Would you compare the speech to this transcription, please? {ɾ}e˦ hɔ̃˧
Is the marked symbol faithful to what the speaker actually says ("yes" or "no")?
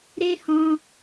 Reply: yes